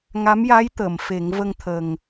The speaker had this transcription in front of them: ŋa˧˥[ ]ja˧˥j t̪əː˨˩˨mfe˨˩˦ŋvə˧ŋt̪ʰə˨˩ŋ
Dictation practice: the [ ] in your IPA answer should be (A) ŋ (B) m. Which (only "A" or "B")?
B